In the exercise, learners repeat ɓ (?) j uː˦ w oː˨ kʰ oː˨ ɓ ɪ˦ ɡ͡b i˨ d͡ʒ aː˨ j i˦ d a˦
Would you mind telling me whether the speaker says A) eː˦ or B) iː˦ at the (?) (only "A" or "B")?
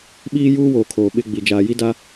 B